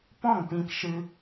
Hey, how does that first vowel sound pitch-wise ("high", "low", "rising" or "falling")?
falling